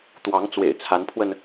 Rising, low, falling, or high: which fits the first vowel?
rising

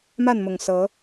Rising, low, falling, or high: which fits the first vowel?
falling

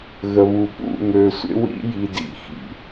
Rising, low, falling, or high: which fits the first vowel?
low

